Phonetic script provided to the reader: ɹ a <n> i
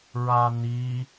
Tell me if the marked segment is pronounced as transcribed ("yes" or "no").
yes